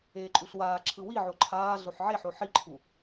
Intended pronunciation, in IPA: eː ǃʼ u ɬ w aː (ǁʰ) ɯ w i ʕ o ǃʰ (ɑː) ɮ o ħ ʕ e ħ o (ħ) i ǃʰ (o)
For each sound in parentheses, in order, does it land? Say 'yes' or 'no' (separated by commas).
yes, no, yes, no